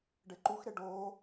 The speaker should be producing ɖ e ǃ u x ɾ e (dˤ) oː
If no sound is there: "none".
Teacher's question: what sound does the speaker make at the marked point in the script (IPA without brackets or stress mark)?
ɖ